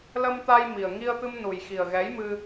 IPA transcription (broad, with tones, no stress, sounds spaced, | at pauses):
l ə˧ m t̪ a˧ j m i˨˩ ə̯ ŋ i˧ ə̯ t̪ ɨ˧ m n u˨˩ j x i˨˩ ə̯ ɣ ɛ˨˦ j m ɨ˧